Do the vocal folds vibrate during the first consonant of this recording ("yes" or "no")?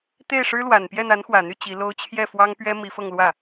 no